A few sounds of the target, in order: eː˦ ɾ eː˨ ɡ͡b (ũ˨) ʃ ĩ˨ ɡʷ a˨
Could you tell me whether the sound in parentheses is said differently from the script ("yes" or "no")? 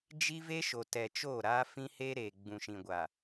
no